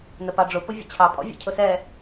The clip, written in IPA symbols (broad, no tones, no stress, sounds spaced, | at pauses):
n ə p ɑ ɖ͡ʐ ʊ p ʊ vʲ ə̰ t͡ɕʰ ɑ pʼ ɔ̰ vʲ ə̰ cʰ ʊ s ɛ